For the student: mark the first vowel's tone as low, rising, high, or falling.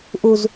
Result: high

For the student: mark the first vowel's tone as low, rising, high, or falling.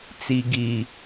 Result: low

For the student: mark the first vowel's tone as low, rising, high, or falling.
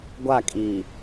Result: falling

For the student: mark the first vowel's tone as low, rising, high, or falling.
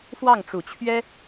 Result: falling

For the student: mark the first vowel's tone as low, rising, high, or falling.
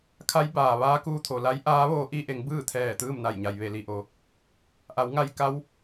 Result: rising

